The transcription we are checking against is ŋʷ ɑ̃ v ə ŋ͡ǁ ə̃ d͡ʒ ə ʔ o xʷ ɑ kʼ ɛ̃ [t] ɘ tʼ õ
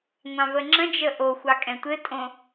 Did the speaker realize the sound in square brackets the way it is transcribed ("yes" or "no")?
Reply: no